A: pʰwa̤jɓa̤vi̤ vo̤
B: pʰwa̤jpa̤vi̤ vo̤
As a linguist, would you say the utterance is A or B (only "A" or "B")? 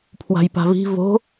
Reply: B